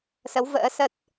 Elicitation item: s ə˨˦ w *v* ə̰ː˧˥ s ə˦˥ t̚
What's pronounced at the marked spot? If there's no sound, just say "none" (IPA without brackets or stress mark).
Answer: v